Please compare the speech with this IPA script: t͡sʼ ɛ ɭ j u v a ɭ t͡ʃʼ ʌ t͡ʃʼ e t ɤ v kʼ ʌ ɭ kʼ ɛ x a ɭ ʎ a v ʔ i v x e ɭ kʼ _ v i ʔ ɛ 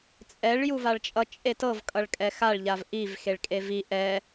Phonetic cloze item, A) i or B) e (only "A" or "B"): B